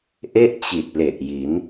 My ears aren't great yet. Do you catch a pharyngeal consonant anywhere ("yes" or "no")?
no